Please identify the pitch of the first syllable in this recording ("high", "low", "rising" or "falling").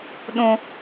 high